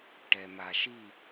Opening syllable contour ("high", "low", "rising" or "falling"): low